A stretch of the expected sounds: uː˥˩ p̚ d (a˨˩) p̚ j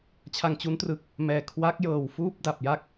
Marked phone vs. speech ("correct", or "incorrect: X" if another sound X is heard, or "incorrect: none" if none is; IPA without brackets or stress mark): correct